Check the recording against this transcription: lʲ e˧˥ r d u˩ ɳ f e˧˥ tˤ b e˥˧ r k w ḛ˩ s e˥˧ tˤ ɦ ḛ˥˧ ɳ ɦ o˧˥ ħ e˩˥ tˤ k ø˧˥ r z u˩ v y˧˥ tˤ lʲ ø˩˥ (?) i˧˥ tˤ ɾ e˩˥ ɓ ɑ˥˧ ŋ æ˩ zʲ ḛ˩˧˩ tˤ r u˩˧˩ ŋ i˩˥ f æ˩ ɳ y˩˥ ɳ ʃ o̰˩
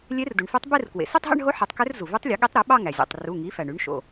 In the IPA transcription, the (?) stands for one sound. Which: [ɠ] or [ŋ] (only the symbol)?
ɠ